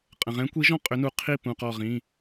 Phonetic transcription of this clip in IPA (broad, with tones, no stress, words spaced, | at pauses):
qʼə̃˩ʁɛ̃˨˥kʷi˨˥ʒɔ̃˥˨ qʼʏ˨˥nu˧˩ qʰi˥˨pũ˩˧˩ qɔ˧˩ʁĩ˩˧˩